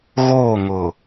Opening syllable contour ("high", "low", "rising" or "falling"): falling